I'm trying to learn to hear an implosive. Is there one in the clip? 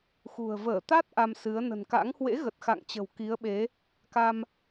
yes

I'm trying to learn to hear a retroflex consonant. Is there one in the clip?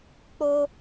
no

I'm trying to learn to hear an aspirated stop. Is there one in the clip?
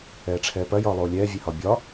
yes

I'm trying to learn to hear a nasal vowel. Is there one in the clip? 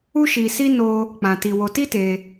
yes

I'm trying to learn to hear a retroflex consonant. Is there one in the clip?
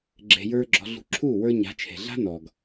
no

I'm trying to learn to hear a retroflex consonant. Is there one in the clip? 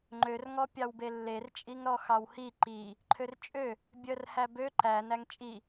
no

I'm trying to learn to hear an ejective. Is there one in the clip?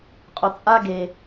yes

